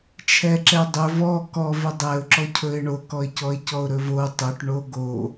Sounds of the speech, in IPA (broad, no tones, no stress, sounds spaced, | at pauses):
t͡ʃʰ ɛ ǁ ɛ dˤ ɵ v ɔ k ɔ v ɵ dˤ ɛ ʊ̯ ǁ ɔ cʰ ɵ ɪ̯ ɳ o k ɔ ɪ̯ c ɔ ɪ̯ c ɔ ʊ̯ ɾ ɵ v o tˤ ɵ ʈ ɳ o ɡ o